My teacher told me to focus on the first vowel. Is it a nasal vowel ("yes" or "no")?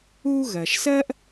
no